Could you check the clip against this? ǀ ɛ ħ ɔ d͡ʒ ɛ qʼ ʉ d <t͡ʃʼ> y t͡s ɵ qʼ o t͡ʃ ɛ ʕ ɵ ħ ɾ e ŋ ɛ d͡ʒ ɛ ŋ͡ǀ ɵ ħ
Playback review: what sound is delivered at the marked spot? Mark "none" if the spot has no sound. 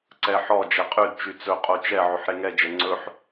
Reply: t͡ʃ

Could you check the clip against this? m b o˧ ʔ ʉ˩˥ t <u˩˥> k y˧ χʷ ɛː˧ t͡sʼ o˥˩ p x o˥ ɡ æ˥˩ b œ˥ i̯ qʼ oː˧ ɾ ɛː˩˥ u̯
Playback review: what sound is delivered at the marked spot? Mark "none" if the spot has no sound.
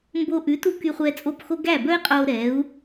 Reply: u˧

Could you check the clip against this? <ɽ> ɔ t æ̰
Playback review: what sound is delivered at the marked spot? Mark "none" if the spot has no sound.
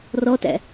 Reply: r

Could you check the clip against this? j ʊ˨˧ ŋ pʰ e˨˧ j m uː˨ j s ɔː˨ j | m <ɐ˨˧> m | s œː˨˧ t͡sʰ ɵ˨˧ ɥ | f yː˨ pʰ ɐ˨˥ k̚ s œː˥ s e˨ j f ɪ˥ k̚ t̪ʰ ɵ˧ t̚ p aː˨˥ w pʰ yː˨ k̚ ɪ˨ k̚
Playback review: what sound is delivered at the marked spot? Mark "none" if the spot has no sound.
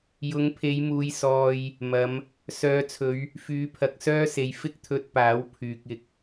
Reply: ɐ˨˧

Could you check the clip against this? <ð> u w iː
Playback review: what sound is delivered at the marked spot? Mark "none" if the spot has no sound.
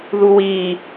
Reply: ð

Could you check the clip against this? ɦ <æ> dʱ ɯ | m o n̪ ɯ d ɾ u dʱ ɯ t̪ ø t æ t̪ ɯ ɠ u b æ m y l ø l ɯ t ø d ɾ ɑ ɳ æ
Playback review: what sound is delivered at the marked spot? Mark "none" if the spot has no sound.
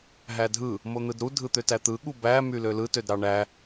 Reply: æ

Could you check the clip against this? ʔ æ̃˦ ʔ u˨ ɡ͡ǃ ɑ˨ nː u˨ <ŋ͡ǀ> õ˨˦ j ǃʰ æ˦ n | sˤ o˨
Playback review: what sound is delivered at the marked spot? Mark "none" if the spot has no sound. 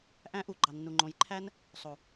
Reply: ŋ͡ǃ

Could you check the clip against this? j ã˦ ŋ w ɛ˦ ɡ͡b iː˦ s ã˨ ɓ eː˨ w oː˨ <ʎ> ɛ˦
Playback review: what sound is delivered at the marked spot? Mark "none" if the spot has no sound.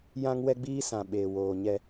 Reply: ɲ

